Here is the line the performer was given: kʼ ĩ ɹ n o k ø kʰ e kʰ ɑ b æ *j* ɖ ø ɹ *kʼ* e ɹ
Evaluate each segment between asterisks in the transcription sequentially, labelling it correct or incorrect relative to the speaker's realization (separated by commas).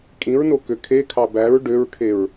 incorrect, incorrect